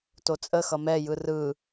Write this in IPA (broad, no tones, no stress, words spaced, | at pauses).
tot͡sʼə xʌmɛ jɯrɯ